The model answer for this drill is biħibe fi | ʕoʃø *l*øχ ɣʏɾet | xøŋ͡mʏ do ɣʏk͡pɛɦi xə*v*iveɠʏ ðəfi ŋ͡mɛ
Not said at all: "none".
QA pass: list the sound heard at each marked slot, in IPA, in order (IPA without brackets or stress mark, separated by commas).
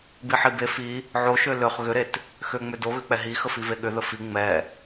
l, f